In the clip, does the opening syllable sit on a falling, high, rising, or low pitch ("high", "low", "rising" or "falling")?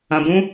low